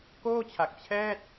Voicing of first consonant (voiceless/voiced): voiceless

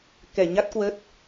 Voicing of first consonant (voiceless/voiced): voiceless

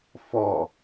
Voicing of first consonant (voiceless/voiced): voiceless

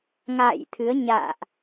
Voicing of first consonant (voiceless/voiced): voiced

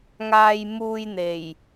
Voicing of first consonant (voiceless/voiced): voiced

